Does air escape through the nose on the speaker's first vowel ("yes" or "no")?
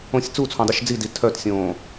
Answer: yes